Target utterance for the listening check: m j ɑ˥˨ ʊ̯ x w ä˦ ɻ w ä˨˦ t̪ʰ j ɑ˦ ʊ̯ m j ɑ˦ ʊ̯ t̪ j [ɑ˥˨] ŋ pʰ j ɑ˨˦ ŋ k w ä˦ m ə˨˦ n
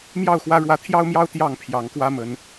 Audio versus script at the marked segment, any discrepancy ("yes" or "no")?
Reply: no